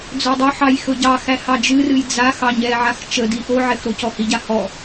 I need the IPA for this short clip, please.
d͡zɵdˤɵħɑj xɵɟɑxæ hɑd͡ʒɨrɨj d͡za xɑɲɛʕax t͡ʃədi ʔoʕɛx ɾocɔhiɟa hɔ

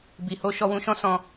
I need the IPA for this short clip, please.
bi˨ho˧ ʃɔ˧wũ˧ʃɔ̃˦ sɔ̃˦

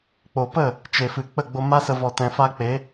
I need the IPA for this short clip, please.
k͡po˨pə˦˨ | t͡ʃe˨fɨ˨ k͡pə˦˨ɡ͡bo˧ma˦sə˧ vɔ˨tɛ̃˨fa˧k͡pe˨˦

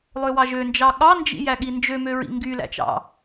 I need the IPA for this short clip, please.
lˠøwɑʒønd͡ʒɑ ɠɑnd͡ʒḭ jæɠind͡ʒømø ɹḭŋɡylæ̰t͡ʃɑ̰

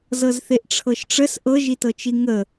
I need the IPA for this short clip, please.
zɤzθeʔʈ͡ʂʰɤʃʈ͡ʂəs ʔɤʒitɤt͡ʃi ŋə

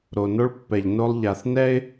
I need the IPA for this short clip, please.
ɾo˨no˦ɭ pːɛ˨ʎno˦lˠ ʎa˨θnɛ˦ɪ̯

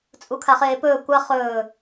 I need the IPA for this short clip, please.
t͡sʼukʰaχeːpɵː kʷa χɵː

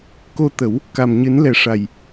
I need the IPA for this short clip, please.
ko˧t̪ə˨˩˦w | ka˨˩mɲɨ˨˩˦nlɛ˨˩ʂa˨˩j

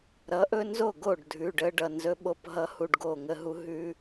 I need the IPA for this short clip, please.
ɾʌ˨˥ʔɵ˦nzo˥˩ɡo˥˩ɖ dʱʉ˩˧˩ɖə˦ ɖʌ˩˧˩nzɵ˦ɓo˥˩p ɦʌ˦ hu˦ɖɡo˥˩ ŋə˦ɦu˦ɦʉ˦

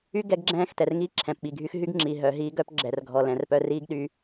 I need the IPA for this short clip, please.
y˦ ɡɛ˦ɡɡ͡ǁɛ̃ː˦xtɛ˨r ŋiː˦ǁʰɛ̃˨pɓi˨ɡʱy˦x ɦy˦ɡŋ͡ǁi˨ɦœ˨ ɦiː˦ɡœ˦pɡ͡ǁɛ˨r ɡʱɔ˨lɛ̃˨rpœ˦r iː˦ɡɗy˨

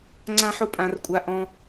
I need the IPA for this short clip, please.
ŋ͡ǀã˥ħʊ˥ pʼã˧rkʷʼa˧ ʔɔ̃˧

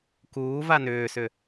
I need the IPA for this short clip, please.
kuː vanʏːsʏ

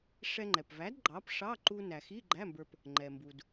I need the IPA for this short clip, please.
ʂɛ˧ŋ͡ǃɛ˩pvæ˨˥d ɡ͡ǃɑ˨˥p ʂɑ˧˥˧ǃu˧næ˩xi˧˥˧ ɡ͡ǃæ˧˥˧mbə˞˧p | ŋ͡ǃɛ˩mbu˩d

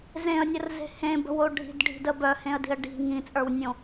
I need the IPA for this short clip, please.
zẽə̯nʲərze̤ hẽbə̤wo ɖʱi̤dɖʱi̤də bœhẽə̯di̤ə̯ ɖi̤ ŋĩt͡sʼə˞wnʲõ

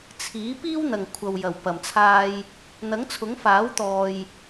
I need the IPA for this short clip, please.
t͡sʰiː˨˥ piː˥wn̪ɐ˨ŋ kʷʰɐ˨wjɐ˨˩wpɐ˨˩mt͡sʰaː˧j | n̪ɐ˨˥ŋt͡sʰʊ˨˥ŋfaː˨˥wt̪ɔː˨j

